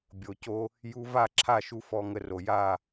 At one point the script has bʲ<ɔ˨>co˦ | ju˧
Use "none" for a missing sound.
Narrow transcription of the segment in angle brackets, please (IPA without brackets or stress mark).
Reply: o˨